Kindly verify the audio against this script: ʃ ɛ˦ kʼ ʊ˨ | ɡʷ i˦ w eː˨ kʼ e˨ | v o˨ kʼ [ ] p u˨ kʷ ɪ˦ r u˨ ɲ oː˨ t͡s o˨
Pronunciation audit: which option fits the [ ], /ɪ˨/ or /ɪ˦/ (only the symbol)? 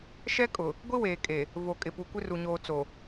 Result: ɪ˨